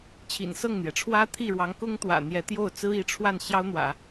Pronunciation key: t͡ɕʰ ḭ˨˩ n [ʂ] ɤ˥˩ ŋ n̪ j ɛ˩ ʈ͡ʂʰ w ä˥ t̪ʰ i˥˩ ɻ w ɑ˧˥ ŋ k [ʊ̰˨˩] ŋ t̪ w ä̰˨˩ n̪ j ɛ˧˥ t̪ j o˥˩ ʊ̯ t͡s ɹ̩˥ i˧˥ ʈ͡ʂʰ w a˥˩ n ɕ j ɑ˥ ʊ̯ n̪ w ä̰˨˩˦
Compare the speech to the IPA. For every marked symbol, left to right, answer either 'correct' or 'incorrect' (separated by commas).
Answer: incorrect, incorrect